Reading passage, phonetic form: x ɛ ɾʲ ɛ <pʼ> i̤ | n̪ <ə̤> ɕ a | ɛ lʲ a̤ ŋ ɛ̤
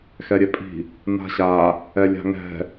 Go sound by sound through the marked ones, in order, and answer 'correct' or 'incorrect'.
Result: correct, incorrect: a̤

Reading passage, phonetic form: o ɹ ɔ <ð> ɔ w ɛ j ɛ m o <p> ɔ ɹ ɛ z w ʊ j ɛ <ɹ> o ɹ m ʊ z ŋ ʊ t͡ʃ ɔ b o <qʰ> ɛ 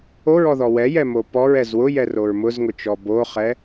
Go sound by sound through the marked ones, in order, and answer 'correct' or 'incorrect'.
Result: correct, correct, incorrect: r, incorrect: χ

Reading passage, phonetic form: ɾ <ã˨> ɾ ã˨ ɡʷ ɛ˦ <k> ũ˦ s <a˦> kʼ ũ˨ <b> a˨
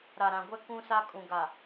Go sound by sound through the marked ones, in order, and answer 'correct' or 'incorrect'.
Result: incorrect: a˨, correct, correct, incorrect: ɡ

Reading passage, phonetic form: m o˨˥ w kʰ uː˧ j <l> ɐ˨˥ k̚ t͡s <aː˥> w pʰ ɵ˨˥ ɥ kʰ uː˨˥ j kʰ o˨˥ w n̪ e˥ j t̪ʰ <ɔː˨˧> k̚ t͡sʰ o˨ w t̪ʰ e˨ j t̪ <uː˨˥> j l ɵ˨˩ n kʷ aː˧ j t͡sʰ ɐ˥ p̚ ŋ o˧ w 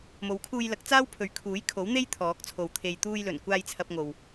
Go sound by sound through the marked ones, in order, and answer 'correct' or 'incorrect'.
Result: correct, correct, incorrect: ɔː˨˥, incorrect: uː˧

